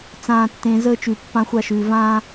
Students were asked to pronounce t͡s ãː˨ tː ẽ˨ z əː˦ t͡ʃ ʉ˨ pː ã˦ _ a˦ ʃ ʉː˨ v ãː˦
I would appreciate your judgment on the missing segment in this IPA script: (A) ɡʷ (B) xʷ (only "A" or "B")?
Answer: B